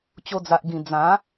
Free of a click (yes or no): yes